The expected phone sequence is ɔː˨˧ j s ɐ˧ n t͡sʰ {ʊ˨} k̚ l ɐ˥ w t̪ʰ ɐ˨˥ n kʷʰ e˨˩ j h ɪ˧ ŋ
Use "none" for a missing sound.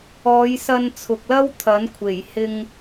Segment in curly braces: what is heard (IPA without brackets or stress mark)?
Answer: ʊ˨